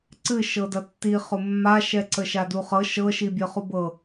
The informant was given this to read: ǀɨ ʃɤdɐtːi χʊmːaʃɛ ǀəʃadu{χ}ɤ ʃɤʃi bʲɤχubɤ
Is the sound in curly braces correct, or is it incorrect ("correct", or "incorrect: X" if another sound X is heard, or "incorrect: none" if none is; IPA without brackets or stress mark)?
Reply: correct